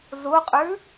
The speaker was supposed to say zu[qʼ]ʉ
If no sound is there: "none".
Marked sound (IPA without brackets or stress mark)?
qʼ